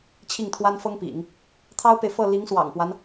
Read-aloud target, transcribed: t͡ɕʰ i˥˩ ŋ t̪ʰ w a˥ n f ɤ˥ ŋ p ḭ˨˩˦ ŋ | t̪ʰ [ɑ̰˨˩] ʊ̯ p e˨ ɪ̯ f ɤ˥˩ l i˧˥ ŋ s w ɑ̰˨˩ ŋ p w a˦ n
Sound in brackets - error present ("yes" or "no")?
yes